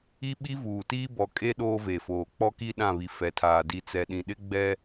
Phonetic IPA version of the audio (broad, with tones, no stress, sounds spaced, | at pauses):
i˦ ɓ i˦ v uː˨ t iː˦ b ɔ˨ kʼ e˦ ɗ oː˦ v e˨ f oː˨ k͡p ɔ˦ k i˦ ɗ ã˦˨ β i˨ f ɛ˨ tʰ aː˨ d i˨ t͡s ɛ˨ ɗ ĩ˨ ɗ ɪ˦ ɡ͡b ɛ˦